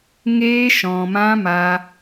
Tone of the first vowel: high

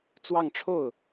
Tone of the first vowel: falling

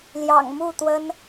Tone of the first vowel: low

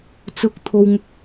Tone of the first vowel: rising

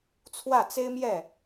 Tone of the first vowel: falling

